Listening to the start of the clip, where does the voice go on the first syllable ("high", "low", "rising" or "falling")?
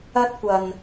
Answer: high